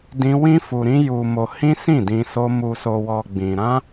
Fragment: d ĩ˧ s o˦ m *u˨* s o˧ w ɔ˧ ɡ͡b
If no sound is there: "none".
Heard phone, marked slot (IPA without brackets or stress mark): u˧